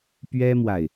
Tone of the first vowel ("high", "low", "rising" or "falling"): high